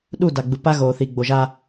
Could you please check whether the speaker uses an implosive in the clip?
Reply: yes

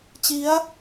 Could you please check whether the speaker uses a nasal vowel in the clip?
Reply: no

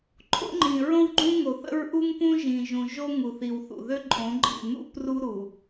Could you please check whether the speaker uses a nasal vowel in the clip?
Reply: yes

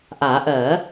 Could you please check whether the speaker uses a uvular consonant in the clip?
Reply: no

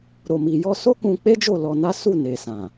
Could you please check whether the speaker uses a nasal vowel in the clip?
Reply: yes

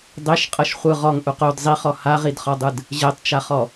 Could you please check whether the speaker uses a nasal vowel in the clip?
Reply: no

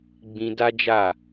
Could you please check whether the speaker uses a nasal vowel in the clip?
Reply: yes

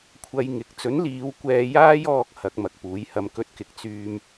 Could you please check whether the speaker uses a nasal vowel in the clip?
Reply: no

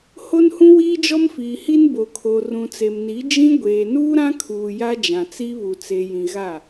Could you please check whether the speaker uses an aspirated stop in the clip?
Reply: yes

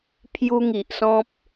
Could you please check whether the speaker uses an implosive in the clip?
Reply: no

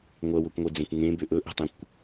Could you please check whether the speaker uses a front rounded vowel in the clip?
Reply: yes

